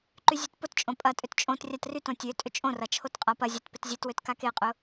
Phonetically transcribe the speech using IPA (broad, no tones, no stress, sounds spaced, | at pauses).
ǃ y zʲ ø t p ʊ t t͡ʃʼ õ pʼ ɐ tʼ ʏ t t͡ʃʼ õ t rʲ a t r y t õ tʲ ø tʼ ʏ t͡ʃʼ õ r ɐ t͡ʃʰ o t qʼ a p ɐ zʲ a t p ɪ t zʲ e t w ø t k a k e qʼ ʊ